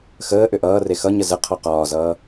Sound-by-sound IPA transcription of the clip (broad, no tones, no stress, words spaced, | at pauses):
xəː ʔʏʔʌːre xʌɲə zə qʰɔqɒːzʌː